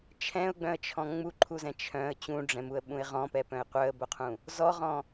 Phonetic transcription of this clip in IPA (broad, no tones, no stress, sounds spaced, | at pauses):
t͡ʃʰ ɛ̃ ʊ̯ ɡ͡b œ̃ ə̯ t͡ʃʰ ɔ̃ ŋ͡m u ǃʰ u z ɛ̃ t͡ʃʰ œ̃ ə̯ t͡ɕ ũ ɖ͡ʐ ɛ̃ m u ə̯ ɓ ũ ɪ̯ ʁ ɔ̃ p ɛ p œ̃ ɪ̯ qʷ œ ə̯ b o qʰ ũ | z ɔ ʁ ɔ̃